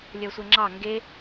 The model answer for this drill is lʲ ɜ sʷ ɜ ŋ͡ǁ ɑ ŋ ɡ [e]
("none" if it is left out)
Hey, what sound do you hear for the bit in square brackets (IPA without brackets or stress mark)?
e